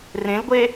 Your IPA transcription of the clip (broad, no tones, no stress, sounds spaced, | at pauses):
r ẽ l ɡʷ e